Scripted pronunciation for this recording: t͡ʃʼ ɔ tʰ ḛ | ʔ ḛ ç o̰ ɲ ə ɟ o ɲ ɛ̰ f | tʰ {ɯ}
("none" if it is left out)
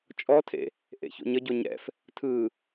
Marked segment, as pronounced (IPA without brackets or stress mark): ɯ